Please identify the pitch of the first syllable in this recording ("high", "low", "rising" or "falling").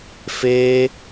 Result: high